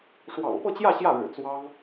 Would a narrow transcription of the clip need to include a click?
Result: no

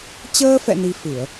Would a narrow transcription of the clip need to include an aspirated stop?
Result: no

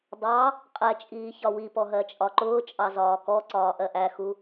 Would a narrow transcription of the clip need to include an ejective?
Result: yes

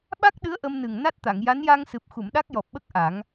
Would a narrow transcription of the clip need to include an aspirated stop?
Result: no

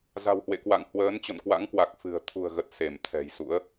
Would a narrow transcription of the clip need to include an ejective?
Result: no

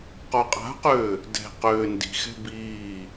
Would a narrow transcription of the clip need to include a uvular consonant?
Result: yes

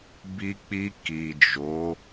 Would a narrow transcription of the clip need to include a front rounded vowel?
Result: no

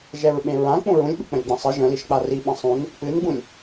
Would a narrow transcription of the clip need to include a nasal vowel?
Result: yes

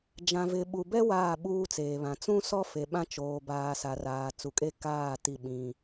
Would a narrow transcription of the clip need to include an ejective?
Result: yes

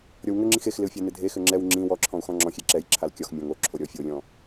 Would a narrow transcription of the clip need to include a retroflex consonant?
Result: no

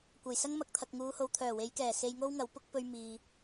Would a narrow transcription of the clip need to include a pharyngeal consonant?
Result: no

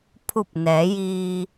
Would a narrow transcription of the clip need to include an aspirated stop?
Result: yes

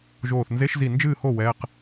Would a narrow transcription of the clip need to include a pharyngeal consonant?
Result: no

